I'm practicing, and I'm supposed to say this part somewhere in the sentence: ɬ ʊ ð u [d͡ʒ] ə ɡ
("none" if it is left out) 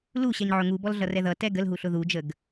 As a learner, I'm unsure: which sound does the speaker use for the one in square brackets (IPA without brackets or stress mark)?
d͡ʒ